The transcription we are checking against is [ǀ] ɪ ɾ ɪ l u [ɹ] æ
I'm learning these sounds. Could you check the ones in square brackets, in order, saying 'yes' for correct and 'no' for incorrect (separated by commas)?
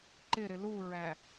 no, yes